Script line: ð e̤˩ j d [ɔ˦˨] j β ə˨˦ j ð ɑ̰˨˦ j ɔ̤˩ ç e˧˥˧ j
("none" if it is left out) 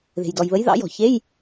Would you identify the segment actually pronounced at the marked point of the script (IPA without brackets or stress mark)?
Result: ɔ˩